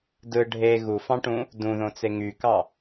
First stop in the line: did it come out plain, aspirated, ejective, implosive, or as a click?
plain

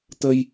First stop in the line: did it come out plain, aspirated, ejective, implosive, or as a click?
plain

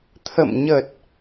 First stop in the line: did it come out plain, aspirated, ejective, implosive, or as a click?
aspirated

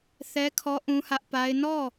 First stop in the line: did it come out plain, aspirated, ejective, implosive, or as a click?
aspirated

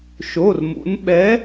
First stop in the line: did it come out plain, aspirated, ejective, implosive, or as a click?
implosive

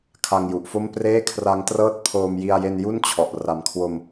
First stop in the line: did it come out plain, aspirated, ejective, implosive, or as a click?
aspirated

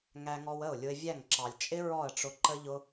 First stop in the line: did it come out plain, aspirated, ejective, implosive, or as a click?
click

